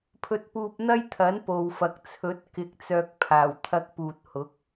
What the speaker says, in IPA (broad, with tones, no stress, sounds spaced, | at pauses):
pʰ ɵ˧ t̚ p uː˧ p̚ n̪ ɐ˥ j t̪ʰ ɐ˨˥ n p o˨ w f ɐ˨ k̚ t͡sʰ ɵ˨˥ t̚ k ɪ˧ k̚ t͡s œː˧ k̚ pʰ aː˨˩ w t̪ʰ ɐ˧ k̚ p uː˨ t̚ h ʊ˨˥ k̚